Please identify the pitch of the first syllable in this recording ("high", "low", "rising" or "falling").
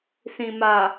low